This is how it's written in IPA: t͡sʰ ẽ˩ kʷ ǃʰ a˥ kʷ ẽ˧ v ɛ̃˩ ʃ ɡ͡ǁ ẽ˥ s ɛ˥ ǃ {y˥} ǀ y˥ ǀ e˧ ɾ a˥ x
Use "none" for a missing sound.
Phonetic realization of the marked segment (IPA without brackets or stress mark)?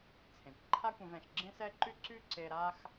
y˥